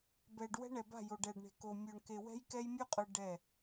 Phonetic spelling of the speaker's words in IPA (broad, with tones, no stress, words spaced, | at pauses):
bɛ˨ɖ wɛ̤˦ɳɛ˨ba̤˦˨ jo˨ɖɛː˨ɖɳe̤˨koː˨ mʲo˨ɳke˨ wɛ̤˦jkɛ˦jmʲu˦qʼɯ˨ ɖɛ˦˨